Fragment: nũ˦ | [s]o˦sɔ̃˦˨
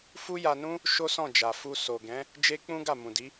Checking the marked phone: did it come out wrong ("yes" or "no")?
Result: yes